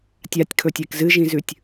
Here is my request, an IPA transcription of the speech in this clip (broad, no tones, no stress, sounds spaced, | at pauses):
tʲ a tʲ kʰ ɵ tʲ e k z ɨ ʒ ĩ z ʉ tʲ